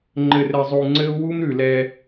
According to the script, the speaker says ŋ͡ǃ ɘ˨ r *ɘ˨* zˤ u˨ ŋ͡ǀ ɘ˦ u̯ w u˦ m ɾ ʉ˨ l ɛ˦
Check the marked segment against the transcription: correct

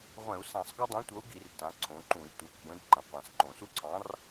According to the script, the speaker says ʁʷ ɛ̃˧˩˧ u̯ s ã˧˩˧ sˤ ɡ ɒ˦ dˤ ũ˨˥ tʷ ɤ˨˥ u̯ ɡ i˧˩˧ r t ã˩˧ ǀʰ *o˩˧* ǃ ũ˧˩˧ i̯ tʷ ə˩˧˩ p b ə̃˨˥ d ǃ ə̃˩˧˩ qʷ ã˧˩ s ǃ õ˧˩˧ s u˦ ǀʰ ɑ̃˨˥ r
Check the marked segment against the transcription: incorrect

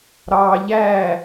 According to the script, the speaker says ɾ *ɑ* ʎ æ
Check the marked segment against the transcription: correct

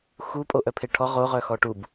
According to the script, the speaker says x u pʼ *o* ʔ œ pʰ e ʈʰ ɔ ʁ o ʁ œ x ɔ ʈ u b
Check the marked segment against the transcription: correct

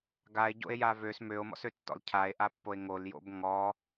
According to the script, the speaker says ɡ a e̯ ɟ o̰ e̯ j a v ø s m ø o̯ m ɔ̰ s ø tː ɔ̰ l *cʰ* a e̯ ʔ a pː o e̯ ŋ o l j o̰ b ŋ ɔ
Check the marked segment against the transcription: correct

